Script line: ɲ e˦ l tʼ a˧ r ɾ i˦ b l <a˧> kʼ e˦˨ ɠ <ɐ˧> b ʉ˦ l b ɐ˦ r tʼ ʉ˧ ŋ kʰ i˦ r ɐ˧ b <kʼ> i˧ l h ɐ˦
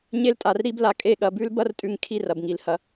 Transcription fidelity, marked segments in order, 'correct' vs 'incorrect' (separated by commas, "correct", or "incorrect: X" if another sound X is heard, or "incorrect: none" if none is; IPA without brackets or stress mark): correct, correct, incorrect: ŋ